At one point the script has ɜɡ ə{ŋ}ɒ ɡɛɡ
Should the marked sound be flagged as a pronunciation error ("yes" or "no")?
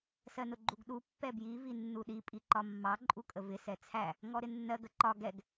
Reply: yes